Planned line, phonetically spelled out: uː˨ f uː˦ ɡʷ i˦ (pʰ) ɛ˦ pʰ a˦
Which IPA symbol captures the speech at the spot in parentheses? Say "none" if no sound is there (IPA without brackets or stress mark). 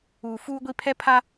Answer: pʰ